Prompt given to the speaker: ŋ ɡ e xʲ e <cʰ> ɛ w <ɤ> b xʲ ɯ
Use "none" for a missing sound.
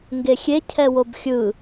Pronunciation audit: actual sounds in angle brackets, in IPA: cʰ, o

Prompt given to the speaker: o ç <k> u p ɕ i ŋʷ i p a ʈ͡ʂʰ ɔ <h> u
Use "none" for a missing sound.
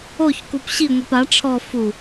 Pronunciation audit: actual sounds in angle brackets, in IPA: k, f

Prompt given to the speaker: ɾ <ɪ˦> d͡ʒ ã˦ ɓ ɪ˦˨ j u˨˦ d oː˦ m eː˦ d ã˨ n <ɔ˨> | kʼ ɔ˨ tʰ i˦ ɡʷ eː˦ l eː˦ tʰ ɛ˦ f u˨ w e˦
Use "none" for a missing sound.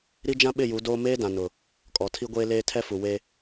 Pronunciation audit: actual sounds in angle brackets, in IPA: i˦, ʊ˨

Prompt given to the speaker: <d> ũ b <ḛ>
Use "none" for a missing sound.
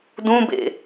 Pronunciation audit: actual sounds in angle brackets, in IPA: d, ḛ

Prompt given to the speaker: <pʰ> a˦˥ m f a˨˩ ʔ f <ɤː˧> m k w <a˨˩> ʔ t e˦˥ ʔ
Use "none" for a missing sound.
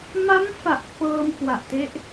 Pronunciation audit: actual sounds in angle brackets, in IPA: m, ɤː˧, a˨˩

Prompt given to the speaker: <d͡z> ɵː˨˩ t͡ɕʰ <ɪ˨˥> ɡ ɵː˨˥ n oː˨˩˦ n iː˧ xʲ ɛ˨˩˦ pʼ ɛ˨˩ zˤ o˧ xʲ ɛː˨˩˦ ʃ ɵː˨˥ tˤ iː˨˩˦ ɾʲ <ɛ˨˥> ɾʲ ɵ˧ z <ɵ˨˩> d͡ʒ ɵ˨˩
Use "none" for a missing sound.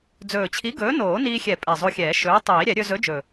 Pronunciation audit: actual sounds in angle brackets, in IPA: d͡z, i˨˥, ɛ˨˩˦, ɵ˨˥

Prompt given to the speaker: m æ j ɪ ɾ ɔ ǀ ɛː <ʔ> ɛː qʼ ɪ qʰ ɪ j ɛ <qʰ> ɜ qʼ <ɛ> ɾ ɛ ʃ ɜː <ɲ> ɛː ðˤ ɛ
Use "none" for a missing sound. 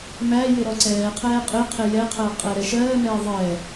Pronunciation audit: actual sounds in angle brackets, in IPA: qʰ, qʰ, ɛ, m

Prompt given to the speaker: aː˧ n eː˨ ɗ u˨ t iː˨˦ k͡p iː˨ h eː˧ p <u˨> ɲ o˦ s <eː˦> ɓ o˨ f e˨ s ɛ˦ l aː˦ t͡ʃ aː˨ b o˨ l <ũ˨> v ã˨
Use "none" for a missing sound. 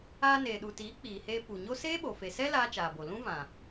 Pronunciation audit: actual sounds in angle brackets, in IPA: u˨, eː˦, ũ˦

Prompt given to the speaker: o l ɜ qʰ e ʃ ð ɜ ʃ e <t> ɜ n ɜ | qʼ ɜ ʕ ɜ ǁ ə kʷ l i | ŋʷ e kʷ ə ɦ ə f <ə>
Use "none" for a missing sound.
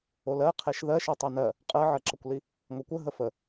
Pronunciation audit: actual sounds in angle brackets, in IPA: tˤ, ə

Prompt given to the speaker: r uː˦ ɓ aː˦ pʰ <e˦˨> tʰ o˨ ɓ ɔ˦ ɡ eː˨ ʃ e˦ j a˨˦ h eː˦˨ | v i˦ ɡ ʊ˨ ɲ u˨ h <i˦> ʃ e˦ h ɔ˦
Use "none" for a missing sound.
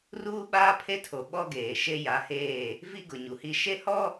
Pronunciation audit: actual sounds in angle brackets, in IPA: e˦, i˦

